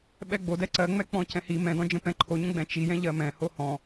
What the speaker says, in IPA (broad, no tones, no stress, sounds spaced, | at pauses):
ɓ ɛ ɡ͡b o d ɛ ǀ ɜ ŋ͡m ɛ k͡p ɔ̃ c ɛ̃ h i m ɛ̃ d ɔ̃ d͡ʒ ə̃ p ɛ̃ ǃʰ o ɲ ə̃ ɡ͡b ɛ̃ t͡ʃ i j ɛ̃ ʎ ɜ m ɛ̃ h o h ɔ̃